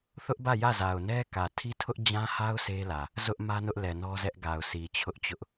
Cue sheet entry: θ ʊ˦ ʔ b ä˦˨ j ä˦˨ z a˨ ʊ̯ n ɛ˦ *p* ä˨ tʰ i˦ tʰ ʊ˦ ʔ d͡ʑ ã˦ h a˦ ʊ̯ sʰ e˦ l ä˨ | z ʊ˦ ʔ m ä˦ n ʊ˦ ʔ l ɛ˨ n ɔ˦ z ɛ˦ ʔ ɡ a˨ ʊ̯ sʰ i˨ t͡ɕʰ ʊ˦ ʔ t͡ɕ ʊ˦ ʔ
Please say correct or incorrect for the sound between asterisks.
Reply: incorrect